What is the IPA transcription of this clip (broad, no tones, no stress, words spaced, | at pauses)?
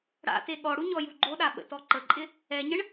ɽa̰te ɠɔɽu ɲɔjuɡ͡ǃoɗa ɓə̰tɔǃəǃʼɪ | ɛɲəɳ